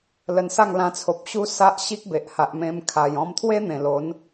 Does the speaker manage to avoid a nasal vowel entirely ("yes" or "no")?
no